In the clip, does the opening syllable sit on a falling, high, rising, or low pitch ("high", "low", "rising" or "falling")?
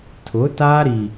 rising